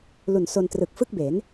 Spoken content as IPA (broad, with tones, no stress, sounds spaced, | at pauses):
l u˨˩ n s o˧ n t r ɯ˨˩ k̚ f ɯ˥˩ k̚ b e˩˦ n